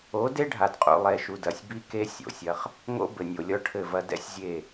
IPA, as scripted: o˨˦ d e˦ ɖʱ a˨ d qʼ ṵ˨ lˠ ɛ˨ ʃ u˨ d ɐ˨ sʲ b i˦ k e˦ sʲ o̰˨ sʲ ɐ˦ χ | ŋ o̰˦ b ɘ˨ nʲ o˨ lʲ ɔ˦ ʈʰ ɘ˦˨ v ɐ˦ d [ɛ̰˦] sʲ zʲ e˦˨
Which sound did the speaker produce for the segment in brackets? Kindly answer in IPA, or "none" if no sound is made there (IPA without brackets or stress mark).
ɛ̰˦